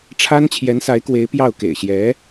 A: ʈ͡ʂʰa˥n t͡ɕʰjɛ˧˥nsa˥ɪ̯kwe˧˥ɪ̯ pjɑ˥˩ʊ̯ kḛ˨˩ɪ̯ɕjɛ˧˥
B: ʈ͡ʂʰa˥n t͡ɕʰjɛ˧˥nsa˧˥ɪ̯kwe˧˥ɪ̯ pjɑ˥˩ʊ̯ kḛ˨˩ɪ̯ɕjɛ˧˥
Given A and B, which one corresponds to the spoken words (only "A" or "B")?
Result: B